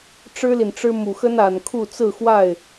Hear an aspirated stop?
yes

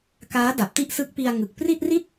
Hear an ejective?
no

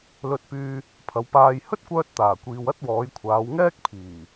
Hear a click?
no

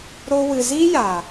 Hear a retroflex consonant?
no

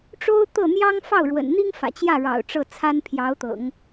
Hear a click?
no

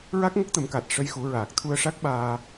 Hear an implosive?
yes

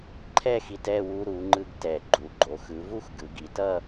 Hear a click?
yes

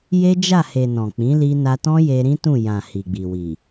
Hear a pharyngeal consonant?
no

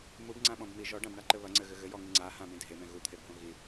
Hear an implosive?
yes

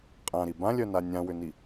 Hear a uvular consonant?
yes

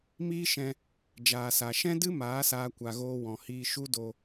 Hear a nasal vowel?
yes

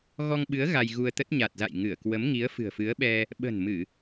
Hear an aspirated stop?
no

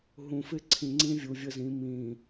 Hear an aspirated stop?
yes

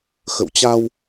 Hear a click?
no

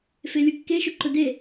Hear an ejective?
no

